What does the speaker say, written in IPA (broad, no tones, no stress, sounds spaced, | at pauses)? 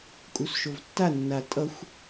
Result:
kʼ u s ʃ o v tː a nː a tʼ ʌ xʷ